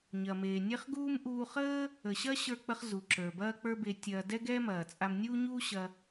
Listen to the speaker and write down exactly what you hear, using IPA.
ɲ ɐ˩ m eː˩ nʲ e˥ χ ɡ uː˥ m ʔ uː˧ χ əː˥ | ə˩ ɕ ɐ˥ ɕ ə˞˧ k͡p ə˧ χ z u˩ ǁ ə˞˩ b ɐː˥ k͡p ə˞˥ b e˧ tʲ ɐː˧ d ɛ˥ ɡ ɛː˥ m ɐː˩ t͡sʼ a˧ m nʲ uː˥ ɲ uː˥ ɕ ɐ˧

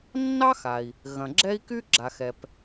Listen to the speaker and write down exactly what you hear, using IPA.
nː ɑ˥ x a˩ i̯ | ɣ ɐ̃˩ ɡ͡ǁ ɛ˥ i̯ k y˥ ɡ͡ǁ a˩ x ɛ˩ p

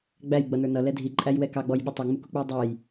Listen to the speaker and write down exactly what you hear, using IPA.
ɡ͡b æ j ɡ͡b ʌ n ə˞ n ʌ l ɛ dʱ i ǃʼ æ j w ɛ k ɑ ɡ͡b ɔ j ɓ u tˤ ʌ ŋ͡m u k u k͡p u j dˤ ɛ j

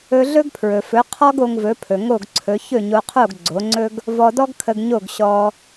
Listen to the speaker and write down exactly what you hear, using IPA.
ɵ˧ ɮ ɵ˥ ɡ pʰ ɹ ɵ˩ f ɵ˩˥ qʰ ɔ˥ ɡ o˧ ŋ v ɵ˩˥ pʰ ɵ˩ ŋ o˥˩ ɡ ǀʰ ɵ˩˥ ç ɵ˥˩ ɲ o˧ qʰ o˥˩ ɡ ɡ͡ǀ o˩˥ ŋ͡ǀ ɵ˥ ɡ | v ɔ˧ d ɔ˥ ɡ kʰ ə˧ ɡ ɲ o˥˩ ɡ ɕ ɔ˧

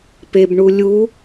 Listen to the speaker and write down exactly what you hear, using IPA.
p e b ɳ u lʲ u

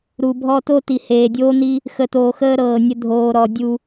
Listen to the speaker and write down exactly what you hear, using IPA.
ɾ u˨ bʱ ɔ˧ t o˦ t i˨ h eː˨ dʲ oː˦ n̪ i˦ | x ə˨ t oː˨ x əː˧ ɾ ɤː˨ nʲ ə˧ dʱ oː˨ ɾ ɔ˨ dʲ u˧

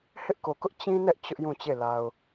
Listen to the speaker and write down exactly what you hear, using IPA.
h ɪ˦ ʔ k o˨ k ʊ˦ ʔ t͡ɕ ĩ˦ n ɛ˦ ʔ t͡ɕ ʊ˦ ʔ j ũ˦˨ t͡ɕ e˦˨ l a˨ ʊ̯

